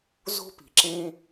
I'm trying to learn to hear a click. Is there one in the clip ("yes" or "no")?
yes